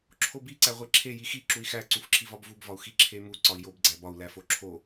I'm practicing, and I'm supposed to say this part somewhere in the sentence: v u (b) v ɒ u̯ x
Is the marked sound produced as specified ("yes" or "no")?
yes